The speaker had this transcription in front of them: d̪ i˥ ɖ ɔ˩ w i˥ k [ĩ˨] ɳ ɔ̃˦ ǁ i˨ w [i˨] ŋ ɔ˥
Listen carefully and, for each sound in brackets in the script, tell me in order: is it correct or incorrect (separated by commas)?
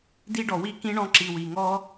incorrect, incorrect